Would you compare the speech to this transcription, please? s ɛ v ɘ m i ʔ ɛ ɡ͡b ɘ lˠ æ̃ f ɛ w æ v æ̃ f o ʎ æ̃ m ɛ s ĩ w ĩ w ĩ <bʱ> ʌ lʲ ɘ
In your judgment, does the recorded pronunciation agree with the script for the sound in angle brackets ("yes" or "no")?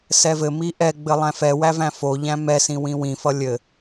no